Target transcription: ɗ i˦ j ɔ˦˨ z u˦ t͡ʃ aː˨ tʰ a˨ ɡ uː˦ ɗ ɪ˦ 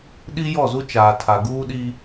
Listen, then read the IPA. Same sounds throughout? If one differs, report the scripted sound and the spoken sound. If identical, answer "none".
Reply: ɪ˦ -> i˦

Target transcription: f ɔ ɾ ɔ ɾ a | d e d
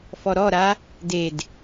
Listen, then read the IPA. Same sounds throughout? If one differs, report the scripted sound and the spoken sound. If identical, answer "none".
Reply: none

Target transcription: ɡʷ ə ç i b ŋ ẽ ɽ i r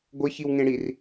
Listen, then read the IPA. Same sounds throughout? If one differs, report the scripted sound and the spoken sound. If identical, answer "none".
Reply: b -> w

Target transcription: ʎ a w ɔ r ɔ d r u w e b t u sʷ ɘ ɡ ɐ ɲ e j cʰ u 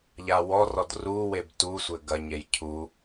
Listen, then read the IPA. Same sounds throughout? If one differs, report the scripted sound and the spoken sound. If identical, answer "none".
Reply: none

